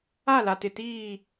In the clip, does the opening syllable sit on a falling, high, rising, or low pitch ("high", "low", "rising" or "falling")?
falling